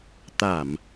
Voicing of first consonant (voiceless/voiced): voiceless